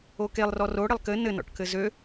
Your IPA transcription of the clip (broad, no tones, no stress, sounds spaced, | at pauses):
o k e lˠ r ɔ r o ɽ ɘ lˠ k ɘ n ɘ n ɔ̰ ʈ k ɘ z ø